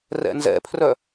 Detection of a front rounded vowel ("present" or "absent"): present